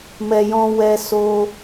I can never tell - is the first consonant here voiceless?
no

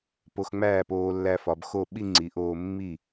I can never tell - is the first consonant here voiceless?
yes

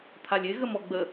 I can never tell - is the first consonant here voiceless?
yes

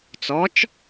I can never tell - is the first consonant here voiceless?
yes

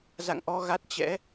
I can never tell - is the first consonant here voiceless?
no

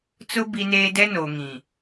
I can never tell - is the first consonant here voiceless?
yes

